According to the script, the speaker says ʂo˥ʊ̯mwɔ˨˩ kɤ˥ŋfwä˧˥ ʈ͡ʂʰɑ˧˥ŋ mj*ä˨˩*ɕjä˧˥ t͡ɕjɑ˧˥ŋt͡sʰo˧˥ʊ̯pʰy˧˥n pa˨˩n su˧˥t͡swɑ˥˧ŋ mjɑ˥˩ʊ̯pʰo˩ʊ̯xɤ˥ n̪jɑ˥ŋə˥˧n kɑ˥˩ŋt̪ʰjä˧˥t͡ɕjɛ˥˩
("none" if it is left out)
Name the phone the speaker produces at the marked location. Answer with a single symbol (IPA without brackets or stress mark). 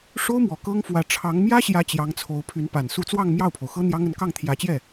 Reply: ä˥